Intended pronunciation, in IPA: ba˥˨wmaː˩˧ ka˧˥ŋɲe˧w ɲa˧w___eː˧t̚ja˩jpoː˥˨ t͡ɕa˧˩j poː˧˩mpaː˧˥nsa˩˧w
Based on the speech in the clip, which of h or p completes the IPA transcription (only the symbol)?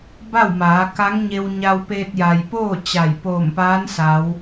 p